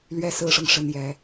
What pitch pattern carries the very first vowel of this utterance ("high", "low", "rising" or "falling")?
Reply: high